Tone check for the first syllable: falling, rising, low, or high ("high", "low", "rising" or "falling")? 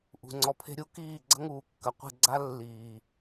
low